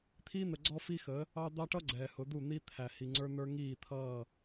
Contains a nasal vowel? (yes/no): no